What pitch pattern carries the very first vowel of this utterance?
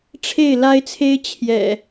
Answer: falling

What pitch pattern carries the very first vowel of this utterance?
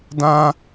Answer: high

